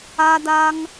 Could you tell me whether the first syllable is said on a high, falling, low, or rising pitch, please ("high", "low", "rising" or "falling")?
high